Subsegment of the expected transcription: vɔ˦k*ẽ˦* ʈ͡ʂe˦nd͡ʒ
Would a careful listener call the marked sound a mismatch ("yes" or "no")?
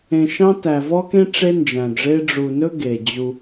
no